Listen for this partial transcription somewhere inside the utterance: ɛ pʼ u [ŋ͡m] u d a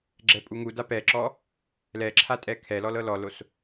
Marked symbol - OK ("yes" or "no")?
no